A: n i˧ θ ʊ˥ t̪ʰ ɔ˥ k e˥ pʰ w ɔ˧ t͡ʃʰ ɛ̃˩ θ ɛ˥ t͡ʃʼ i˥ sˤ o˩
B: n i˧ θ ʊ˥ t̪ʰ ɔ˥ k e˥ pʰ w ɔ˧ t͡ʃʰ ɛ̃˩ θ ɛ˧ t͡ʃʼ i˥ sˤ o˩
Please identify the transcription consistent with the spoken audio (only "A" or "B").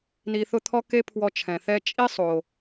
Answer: A